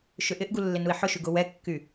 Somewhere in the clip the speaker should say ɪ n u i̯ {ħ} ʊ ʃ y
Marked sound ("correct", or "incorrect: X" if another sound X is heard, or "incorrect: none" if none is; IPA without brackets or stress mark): correct